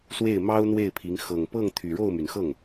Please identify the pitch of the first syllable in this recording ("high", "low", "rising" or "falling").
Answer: falling